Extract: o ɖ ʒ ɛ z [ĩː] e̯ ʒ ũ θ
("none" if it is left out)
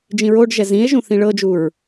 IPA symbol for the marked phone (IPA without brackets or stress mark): ĩ